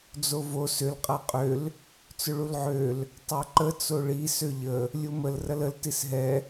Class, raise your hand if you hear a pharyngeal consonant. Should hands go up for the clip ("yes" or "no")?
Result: yes